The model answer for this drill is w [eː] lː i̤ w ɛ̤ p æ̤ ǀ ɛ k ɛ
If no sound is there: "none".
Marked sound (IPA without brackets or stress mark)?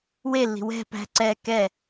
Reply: e